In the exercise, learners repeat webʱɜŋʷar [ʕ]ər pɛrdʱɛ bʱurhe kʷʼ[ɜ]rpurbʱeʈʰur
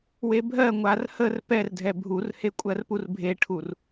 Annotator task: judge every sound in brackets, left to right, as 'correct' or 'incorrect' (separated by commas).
incorrect, correct